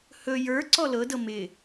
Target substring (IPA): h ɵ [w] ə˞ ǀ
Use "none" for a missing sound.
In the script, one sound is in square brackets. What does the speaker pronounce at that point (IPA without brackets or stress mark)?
j